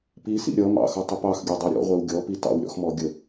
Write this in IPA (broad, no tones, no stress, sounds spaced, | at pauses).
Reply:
p i s ḭ ɾʲ ʌ m ɑ̰ x ʌ tˤ ɪ p ɑ x ɡʲ ə˞ dˤ ɛ ɾʲ ɔ̰ ʁʷ ɛ w ɡʲ ɔ p i t ɑ̰ w ɾʲ ɔ̰ x m ɔ ɡʲ ə